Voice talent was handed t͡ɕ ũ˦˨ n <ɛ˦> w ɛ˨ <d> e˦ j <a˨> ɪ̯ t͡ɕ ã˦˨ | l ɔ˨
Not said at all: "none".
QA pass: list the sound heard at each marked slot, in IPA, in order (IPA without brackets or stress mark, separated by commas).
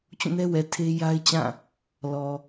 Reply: ɛ˦, tʰ, a˦